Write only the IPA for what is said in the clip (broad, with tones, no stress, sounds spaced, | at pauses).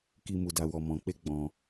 k i˧ m u˧ d a˧ w ɔ˧ m ɔ̃˨ k͡p e˧ ɡ͡b ɔ̃˧